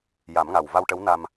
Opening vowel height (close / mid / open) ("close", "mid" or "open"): open